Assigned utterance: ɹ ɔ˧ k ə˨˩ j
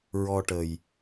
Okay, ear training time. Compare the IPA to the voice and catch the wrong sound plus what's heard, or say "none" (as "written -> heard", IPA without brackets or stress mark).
k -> ʈ